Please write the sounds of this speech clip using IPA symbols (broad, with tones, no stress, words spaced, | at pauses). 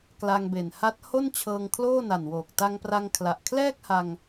kla˧ŋbe˨˩n ha˦˥t̚ ho˥˩nt͡ɕʰɤː˧ŋ kʰloː˥˩na˨˩nwoː˨˩k̚ ta˧ŋpra˧ŋ kʰla˨˩ʔkʰlɛː˥˩k̚ha˧ŋ